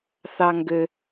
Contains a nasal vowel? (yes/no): no